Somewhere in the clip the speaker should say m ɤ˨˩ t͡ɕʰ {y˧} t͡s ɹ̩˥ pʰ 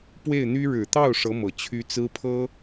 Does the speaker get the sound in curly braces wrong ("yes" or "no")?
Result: yes